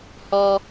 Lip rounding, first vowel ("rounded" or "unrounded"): rounded